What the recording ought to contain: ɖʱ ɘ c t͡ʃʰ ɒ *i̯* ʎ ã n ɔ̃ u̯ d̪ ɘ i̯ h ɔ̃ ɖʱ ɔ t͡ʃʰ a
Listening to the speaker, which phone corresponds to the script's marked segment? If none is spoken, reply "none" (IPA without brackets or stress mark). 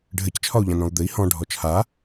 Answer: u̯